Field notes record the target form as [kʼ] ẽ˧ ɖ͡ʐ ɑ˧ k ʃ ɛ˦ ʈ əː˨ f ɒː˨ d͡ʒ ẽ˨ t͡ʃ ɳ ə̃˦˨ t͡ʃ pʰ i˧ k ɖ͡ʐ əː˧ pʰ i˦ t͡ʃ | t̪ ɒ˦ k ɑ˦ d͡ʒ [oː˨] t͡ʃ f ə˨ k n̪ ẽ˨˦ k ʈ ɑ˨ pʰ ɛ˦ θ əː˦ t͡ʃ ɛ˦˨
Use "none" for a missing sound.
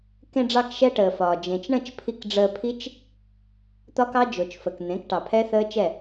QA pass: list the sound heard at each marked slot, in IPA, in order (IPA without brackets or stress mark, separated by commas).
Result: k, o˨